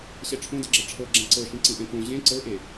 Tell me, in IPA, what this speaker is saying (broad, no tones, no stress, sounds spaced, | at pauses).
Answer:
ɕ ɛ ʈ͡ʂʰ õ d ɤ ɡ͡ǁ ɛ ʈ͡ʂʰ ɤ ɡ͡ǁ ɛ̃ ǀ ɤ ʃ ĩ ǀ ĩ ʔ ɛ̃ k õ ʑ ẽ ǀ ɤ ʔ e